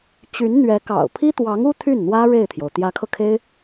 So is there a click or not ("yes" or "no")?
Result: no